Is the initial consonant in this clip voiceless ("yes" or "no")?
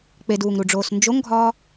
yes